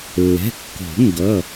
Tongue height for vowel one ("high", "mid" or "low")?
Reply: mid